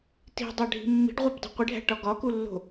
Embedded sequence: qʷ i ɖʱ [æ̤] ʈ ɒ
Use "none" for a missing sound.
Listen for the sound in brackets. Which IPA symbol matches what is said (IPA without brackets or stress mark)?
æ̤